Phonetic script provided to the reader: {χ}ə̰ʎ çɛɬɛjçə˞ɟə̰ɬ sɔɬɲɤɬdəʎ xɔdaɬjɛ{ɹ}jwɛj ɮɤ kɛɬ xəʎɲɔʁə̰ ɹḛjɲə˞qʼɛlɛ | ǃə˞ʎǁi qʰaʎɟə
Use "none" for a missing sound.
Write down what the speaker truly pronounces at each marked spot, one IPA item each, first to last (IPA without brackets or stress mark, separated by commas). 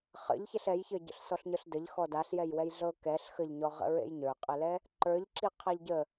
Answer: χ, none